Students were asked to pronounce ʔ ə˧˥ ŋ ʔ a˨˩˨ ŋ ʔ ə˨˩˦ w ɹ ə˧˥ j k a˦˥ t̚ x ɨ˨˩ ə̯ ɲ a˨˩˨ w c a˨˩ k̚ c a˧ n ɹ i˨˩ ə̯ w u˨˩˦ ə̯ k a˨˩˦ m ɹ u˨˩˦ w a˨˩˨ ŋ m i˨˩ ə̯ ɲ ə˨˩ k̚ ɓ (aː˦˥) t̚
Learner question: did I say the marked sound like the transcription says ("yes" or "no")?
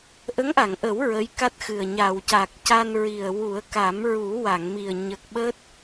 no